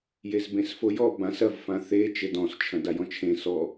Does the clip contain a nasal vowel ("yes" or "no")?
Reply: yes